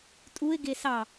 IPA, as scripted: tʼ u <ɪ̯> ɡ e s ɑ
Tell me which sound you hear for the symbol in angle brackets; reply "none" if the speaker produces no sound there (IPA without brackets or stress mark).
ɪ̯